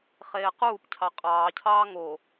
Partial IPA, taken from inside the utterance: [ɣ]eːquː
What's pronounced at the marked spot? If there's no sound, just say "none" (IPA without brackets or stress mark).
χ